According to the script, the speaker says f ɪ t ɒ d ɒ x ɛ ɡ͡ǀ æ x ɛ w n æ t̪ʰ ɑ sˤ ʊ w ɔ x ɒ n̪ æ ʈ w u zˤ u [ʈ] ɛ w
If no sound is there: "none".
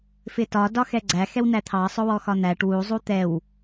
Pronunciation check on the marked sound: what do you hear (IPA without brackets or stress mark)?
t̪